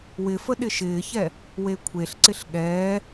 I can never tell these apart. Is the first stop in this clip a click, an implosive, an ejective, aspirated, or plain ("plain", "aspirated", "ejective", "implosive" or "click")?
implosive